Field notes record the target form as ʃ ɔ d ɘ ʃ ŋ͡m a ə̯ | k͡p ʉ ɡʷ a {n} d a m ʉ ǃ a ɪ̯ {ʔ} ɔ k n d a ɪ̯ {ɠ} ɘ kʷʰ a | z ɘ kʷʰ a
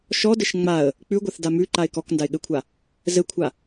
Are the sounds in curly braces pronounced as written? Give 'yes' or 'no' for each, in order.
no, no, yes

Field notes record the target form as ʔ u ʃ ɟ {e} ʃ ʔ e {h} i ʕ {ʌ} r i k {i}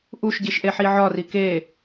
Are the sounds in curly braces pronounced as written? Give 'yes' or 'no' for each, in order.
no, no, no, no

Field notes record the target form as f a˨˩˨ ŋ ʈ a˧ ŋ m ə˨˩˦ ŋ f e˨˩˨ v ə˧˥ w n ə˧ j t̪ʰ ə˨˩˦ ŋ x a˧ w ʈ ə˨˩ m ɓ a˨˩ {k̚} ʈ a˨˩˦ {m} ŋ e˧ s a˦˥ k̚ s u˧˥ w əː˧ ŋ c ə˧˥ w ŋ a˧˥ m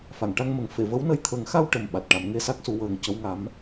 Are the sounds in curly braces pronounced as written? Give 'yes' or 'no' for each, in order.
no, yes

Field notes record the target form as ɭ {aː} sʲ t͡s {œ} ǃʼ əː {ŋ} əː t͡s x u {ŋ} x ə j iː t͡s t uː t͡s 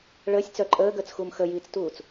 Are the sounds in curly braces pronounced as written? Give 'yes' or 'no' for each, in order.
no, yes, no, no

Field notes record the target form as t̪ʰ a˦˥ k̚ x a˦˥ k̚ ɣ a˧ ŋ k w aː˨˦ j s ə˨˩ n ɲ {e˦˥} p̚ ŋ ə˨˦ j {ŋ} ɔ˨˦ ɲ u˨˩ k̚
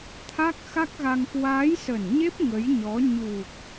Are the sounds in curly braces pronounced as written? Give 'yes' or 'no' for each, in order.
yes, no

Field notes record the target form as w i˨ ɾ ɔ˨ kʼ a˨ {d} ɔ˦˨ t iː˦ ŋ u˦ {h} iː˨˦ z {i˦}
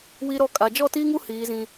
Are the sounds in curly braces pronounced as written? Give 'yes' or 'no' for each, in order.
no, yes, no

